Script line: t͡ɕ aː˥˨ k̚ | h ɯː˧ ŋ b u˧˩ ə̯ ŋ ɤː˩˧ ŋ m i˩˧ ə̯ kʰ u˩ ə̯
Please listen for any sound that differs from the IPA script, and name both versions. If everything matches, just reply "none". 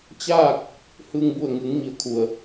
ɤː˩˧ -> ɯː˩˧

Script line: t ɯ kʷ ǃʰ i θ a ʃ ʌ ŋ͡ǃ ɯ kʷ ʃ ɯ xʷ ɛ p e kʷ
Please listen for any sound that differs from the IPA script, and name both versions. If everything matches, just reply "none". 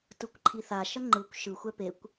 none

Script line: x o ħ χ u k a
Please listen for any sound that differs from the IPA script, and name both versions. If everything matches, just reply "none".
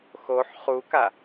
none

